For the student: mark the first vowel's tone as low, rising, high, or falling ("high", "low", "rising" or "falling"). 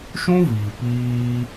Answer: high